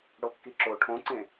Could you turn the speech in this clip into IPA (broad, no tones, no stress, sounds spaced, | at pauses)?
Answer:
ɽ o kː i ǁ o ʈʰ õ ǀ ẽ